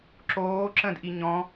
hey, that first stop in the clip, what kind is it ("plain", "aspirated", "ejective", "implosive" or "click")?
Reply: click